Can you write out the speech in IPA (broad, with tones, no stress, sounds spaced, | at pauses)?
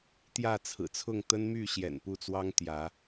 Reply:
t̪ j ä˥˨ t͡sʰ ɹ̩˨˩ t͡sʰ ʊ˥˨ ŋ t̪ ə˦ n m y˥˨ ɕ j ɛ̰˨˩ n p u˥˨ t͡s w ɑ˦ ŋ t̪ j ä˨˦